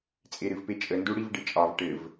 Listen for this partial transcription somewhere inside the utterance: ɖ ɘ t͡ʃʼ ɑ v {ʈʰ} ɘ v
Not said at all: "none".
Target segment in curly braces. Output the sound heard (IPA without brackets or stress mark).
ʈ